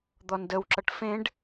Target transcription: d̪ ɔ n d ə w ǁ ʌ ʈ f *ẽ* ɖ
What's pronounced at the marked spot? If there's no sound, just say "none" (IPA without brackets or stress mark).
ẽ